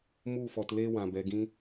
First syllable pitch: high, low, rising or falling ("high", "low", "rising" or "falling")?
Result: falling